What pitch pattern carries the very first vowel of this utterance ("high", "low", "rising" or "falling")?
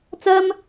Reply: high